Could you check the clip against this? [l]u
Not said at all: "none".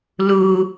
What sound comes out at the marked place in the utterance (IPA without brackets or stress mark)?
l